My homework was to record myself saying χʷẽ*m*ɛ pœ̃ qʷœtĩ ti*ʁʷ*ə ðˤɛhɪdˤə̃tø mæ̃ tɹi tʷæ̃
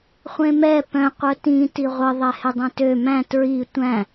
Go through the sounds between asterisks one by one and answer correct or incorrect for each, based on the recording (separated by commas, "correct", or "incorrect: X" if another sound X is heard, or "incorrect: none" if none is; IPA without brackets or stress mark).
correct, correct